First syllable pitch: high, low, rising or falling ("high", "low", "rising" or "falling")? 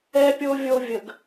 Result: high